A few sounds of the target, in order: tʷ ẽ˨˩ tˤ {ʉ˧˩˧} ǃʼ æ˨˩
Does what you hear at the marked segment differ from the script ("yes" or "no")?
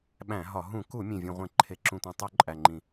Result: yes